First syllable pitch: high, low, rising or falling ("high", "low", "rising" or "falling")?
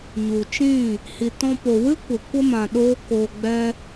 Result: low